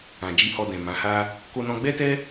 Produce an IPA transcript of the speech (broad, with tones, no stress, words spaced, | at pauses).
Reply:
ã˨d͡ʒi˧hɔ˧ dɛ̃˨ mã˨˦ha˦ | ko˧nɔ̃˧ɡ͡bɛ˦tɛ˦